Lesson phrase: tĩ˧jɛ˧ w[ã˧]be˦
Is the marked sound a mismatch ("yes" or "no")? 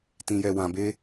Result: no